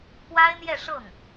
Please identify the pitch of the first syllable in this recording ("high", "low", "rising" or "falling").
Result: high